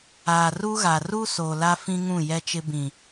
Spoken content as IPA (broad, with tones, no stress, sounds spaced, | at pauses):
aː˨ r u˦ ɣ a˨ r u˦ s o˨ l a˦ f ĩ˦ ŋ ũ˦˨ j ɛ˦ t͡ʃ ɪ˦ b ĩ˨